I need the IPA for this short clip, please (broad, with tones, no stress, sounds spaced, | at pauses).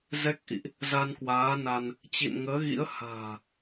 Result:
z ɛ˦˥ k̚ ʔ ḭ˧˨ ʔ | z a˧ n k w aː˨˦ n a˧ n | t͡ɕ ḭ˧˨ n ŋ əː˨˦ ɣ ḭ˧˥ ə̯ h a̤ː˨˩